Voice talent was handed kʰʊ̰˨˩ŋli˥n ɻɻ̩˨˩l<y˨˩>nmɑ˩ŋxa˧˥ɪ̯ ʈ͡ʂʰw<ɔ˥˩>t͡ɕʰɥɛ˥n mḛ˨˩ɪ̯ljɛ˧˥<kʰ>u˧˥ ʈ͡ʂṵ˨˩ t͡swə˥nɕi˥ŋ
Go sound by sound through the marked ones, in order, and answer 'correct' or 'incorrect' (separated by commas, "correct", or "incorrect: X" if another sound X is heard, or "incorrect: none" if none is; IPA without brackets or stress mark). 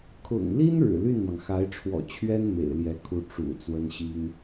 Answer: incorrect: y˥˩, incorrect: ɔ̰˨˩, correct